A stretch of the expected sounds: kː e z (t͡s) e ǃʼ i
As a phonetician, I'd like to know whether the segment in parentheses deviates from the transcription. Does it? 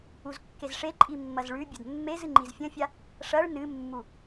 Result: yes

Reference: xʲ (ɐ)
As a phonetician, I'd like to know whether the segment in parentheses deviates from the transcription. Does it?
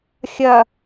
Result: no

